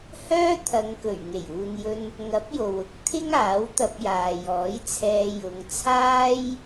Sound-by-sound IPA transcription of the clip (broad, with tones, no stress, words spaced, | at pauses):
hœː˥t̪ʰɐ˨˧ŋkɵ˨˩ɥ ŋe˨˩juː˨njɵ˧n | ŋɐ˨˥p̚jo˨w ʊ˧k̚ t̪ʰɪ˥ŋ aː˨˥wt̪ɐ˧p̚jaː˨jɔː˨˥j t͡sʰɛː˧jʊ˨˧ŋ t͡sʰaː˥j